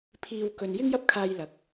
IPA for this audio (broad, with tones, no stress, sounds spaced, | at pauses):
pʰ iː˧ w k ɵ˧ n j ɪ˥ ŋ j ɐ˥ p̚ kʰ aː˧ j l ɐ˨˥ k̚